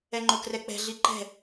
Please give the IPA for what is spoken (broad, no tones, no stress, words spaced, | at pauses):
ɛŋ͡ǃokrɛk͡pɛ̤ ɮiǃɛ̤